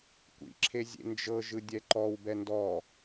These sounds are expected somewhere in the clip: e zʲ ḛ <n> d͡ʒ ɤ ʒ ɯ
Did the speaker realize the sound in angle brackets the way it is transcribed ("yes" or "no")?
yes